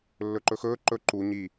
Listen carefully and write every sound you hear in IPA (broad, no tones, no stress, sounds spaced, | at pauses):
lː ɵ ǃ ɵ x ɵː ǃ ɵ ǃ u ɲ i